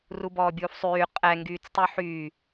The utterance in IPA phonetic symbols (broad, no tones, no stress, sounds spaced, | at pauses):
r u b ɔː bʲ uː f sˤ yː qʼ ɛ ŋ ɡ yː t͡s tˤ y ħ yː